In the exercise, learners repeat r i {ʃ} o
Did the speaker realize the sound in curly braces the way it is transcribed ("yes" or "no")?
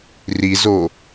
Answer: no